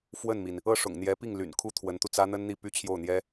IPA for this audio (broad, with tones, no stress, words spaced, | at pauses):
fwə˥˩nmi˩n | ɤ˥˩ ʂʊ̰˨˩ŋn̪jɛ˧˥pi˥˩ŋly̰˨˩n kʰu˥t̪ʰwə˧˥nt̪u˧t͡sä˥ n̪ə˥nn̪i˥˩ py˥t͡ɕʰjo˥˩ʊ̯n̪jɛ˥